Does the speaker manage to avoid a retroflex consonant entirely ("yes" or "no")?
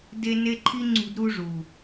no